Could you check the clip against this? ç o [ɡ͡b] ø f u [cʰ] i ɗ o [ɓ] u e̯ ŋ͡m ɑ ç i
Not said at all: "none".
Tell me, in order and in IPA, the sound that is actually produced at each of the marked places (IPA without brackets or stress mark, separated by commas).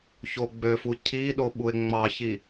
ɡ͡b, cʰ, ɓ